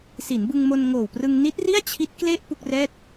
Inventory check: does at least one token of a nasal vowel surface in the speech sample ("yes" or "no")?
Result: no